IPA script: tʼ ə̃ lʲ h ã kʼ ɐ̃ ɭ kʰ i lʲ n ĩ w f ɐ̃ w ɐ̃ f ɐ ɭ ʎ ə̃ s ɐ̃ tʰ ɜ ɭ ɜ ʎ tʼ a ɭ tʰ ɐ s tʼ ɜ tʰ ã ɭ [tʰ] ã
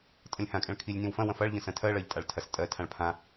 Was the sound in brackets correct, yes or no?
no